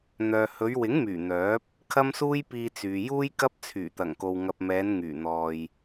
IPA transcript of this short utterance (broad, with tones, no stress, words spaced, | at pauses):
n̪œː˨hɵ˨˧ɥwɪ˨˥ŋmyː˨˩ n̪œː˨˥p̚ | kʰɐ˥msuː˥jpiː˧ t͡syː˨juː˥j kɐ˥p̚t͡sʰyː˨˩t̪ɐ˨˩ŋko˨w ŋɐ˨p̚mɛː˨˧n ŋyː˨˩ n̪ɔː˨j